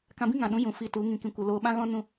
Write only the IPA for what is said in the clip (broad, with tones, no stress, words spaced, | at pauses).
kã˧bĩ˦ŋã˨ɗũ˨˦ jũ˨ fi˧tu˨˦ ŋĩ˨kĩ˨kʷə˨ loː˧ɓã˦ɣɔ̃˦ nũ˦